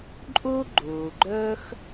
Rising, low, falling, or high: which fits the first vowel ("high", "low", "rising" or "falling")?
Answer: high